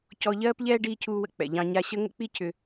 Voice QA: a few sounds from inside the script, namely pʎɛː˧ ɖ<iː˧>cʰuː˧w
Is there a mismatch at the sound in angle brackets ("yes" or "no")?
no